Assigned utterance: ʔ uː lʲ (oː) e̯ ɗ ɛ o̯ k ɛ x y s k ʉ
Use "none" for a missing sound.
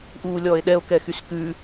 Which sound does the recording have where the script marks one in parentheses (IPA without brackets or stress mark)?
ɔː